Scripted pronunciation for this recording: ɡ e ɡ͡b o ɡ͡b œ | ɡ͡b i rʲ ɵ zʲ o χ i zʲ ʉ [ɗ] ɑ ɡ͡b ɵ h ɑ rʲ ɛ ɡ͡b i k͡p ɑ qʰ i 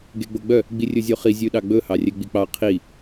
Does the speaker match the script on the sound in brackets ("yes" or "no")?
yes